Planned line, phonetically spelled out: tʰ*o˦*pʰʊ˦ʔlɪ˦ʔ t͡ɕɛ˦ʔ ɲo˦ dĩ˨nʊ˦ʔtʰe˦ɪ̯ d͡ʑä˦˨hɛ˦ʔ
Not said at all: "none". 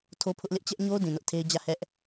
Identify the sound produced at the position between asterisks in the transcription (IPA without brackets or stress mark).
o˦